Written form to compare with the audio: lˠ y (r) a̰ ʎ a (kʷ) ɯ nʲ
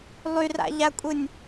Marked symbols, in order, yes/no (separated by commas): yes, no